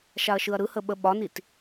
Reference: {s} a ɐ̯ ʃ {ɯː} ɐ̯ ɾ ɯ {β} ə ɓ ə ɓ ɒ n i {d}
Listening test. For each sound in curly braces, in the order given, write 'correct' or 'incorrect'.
incorrect, incorrect, incorrect, incorrect

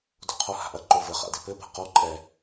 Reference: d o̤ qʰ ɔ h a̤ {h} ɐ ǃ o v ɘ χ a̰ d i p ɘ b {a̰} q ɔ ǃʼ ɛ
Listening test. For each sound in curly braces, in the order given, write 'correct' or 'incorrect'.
incorrect, incorrect

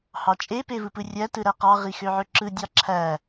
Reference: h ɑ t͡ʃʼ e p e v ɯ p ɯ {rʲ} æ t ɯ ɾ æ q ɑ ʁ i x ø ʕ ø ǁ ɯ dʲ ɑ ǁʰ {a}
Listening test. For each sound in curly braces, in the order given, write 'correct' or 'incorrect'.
correct, incorrect

